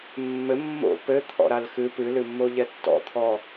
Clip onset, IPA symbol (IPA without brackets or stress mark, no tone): mː